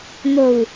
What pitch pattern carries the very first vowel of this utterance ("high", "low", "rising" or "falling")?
low